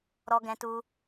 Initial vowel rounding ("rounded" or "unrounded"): rounded